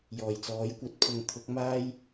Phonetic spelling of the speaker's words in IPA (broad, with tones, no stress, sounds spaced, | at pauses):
j ɔː˨˩ j t͡s ɔː˨˥ j kʷ ɐ˨˥ t̚ pʰ ʊ˧ ŋ t̪ʰ ʊ˨˥ k̚ m aː˧ j